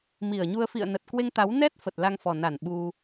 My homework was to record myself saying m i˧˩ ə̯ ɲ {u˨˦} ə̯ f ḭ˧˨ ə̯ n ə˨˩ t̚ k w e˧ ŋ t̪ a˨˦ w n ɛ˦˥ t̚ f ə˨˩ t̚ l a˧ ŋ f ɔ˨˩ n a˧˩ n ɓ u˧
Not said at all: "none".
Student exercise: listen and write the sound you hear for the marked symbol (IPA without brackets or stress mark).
u˧